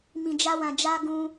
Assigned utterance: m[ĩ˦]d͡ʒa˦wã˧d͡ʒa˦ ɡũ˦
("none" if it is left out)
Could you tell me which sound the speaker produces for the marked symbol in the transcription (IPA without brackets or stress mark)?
ĩ˧